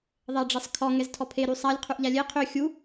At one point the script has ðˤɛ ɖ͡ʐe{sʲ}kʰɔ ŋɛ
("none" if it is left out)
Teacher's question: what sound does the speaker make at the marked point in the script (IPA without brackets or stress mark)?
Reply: sˤ